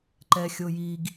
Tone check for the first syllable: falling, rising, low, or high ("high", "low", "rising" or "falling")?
low